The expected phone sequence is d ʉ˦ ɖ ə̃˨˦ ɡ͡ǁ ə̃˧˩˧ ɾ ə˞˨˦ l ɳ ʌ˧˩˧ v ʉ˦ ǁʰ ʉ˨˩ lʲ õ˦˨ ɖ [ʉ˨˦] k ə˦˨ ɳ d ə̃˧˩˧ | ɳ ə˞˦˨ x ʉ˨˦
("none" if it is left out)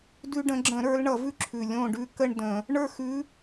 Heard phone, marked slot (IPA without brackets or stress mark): ʉ˦